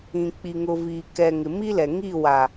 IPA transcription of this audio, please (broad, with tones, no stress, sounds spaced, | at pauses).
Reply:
ĩ˨ k͡p i˨ ŋ ʊ˨ v iː˨ k ɛ˨ ŋ ɪ˨ m i˦ l ɛ˨ ŋ i˦˨ w a˨